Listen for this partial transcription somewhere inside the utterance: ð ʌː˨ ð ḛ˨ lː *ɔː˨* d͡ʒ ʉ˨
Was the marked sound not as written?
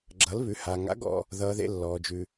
no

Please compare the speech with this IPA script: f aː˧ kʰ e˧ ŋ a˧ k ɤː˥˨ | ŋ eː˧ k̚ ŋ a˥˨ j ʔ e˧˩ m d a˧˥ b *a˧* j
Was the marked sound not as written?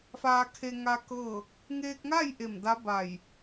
yes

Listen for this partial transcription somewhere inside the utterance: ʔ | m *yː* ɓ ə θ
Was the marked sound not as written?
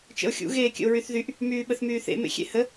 no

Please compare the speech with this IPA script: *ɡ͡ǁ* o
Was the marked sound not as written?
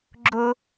no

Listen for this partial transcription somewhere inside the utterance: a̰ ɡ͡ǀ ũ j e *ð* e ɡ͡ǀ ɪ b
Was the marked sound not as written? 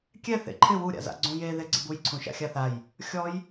no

